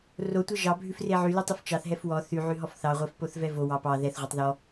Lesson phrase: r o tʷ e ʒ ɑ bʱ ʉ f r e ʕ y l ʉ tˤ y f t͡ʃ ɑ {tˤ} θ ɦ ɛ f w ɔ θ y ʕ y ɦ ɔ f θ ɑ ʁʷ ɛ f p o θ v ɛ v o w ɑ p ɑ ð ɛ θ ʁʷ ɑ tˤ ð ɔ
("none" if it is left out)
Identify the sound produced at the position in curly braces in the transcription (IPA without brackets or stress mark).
none